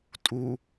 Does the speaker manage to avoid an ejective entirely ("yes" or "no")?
no